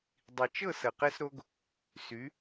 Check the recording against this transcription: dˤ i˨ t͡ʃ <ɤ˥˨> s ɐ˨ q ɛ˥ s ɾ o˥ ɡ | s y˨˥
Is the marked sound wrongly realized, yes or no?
no